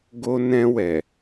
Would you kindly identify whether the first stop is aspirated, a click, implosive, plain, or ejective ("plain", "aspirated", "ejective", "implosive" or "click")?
plain